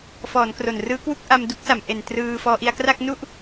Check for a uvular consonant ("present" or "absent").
absent